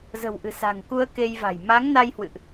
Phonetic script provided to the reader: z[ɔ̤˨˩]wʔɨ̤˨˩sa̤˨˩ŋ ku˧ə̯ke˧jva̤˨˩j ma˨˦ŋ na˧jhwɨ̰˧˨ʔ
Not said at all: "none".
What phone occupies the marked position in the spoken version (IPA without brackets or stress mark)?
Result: ə̤˨˩